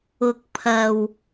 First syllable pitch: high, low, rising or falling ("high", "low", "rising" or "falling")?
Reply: low